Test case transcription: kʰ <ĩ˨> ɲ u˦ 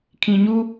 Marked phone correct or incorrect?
correct